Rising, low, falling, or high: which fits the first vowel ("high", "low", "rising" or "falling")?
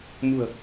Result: low